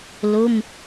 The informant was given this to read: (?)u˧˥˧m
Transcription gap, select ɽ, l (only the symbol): l